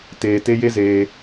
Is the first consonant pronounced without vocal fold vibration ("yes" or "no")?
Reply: yes